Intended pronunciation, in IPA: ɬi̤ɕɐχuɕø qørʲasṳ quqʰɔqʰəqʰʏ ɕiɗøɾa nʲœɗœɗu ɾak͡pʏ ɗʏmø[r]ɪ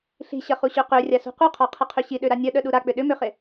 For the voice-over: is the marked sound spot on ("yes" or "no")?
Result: no